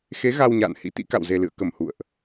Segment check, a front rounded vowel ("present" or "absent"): absent